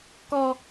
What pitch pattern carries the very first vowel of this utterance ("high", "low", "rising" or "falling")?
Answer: high